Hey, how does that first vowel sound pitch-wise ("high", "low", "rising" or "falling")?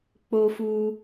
high